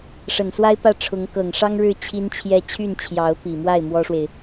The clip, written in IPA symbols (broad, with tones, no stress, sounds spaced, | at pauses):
ʂ ə˨˩ n s w a˥ ɪ̯ p ä˥˩ ʈ͡ʂʰ ʊ˧˥ ŋ k ɤ˨˩ ŋ ʂ ɑ˥ ŋ ɻ ɻ̩˥˩ t͡ɕʰ i˥ n t͡ɕʰ j ɛ˥˧ t͡ɕʰ y˥˩ n t͡ɕʰ j ɑ˧˥ ʊ̯ p i˨˩ m w a˥˩ ɪ̯ m w ɔ˥ ʂ w e˨ ɪ̯